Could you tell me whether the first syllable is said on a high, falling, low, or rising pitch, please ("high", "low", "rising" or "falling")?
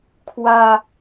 low